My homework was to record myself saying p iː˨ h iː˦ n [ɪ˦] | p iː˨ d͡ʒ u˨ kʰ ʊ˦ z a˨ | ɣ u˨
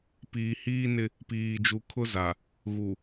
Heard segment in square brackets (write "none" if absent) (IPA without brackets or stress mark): ɪ˦